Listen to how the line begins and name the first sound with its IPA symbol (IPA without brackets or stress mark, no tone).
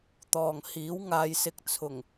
t̪